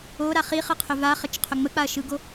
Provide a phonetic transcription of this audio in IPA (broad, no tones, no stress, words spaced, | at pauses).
oɾa χiχɯqʰʏ vaχət͡ʃqʰʏ ŋ͡mək͡paɐ̯ʃɯɡo